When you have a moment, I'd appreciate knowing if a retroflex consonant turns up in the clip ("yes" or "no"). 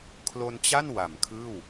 no